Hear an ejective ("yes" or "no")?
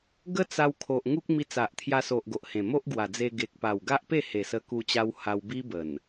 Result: no